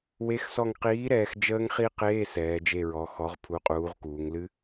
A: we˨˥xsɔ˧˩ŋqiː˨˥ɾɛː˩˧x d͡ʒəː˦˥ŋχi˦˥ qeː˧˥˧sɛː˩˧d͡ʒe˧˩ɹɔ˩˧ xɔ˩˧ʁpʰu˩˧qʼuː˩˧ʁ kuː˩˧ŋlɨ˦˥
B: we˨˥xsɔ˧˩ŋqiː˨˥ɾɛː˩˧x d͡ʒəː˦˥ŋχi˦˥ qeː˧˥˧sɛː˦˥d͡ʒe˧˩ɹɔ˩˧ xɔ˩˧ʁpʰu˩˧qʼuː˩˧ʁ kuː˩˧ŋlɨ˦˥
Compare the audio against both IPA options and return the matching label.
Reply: A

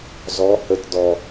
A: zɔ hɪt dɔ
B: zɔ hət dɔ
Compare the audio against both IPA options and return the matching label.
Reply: B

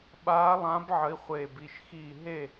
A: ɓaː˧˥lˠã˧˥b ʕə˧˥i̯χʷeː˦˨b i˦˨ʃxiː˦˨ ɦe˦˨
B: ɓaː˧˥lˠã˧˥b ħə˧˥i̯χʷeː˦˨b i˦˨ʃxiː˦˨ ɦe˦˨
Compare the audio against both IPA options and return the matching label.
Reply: A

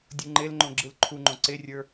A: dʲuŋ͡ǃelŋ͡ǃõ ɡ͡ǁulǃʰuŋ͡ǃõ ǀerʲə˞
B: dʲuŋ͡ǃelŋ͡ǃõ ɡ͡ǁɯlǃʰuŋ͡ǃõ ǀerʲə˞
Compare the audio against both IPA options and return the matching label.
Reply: B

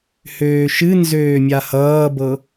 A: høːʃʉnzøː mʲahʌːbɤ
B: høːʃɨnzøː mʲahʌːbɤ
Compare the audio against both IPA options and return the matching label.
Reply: B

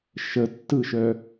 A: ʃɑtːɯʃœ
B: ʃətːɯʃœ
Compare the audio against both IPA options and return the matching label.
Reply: B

